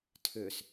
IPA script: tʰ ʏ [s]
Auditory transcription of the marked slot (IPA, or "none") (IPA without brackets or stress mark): s